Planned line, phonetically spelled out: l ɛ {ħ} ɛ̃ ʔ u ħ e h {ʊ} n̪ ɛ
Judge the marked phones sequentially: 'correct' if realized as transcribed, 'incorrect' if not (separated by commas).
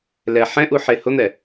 correct, correct